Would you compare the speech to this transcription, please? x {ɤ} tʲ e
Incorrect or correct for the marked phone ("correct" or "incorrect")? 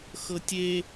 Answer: correct